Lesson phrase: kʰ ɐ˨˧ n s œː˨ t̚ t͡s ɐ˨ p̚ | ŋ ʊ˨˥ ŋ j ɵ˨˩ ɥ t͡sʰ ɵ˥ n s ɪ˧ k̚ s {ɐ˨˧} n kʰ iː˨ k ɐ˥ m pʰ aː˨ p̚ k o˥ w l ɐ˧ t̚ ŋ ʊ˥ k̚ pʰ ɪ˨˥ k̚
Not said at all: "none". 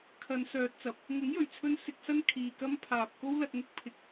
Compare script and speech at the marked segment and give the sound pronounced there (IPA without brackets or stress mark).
ɐ˥